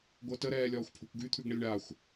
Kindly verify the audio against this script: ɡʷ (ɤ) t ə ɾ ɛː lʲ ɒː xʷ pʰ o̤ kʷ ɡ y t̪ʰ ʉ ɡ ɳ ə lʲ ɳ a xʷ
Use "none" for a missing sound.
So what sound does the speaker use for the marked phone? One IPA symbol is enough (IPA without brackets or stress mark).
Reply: ɤ